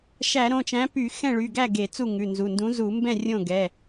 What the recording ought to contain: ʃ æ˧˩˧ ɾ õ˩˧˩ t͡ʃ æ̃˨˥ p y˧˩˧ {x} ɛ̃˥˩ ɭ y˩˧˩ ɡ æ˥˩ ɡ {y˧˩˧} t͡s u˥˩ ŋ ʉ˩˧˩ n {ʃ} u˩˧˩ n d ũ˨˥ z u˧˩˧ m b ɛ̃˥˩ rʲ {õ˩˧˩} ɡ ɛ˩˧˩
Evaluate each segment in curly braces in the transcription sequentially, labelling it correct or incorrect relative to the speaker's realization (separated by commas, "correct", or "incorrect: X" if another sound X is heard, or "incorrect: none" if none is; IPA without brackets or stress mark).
correct, incorrect: e˧˩˧, incorrect: z, incorrect: õ˥˩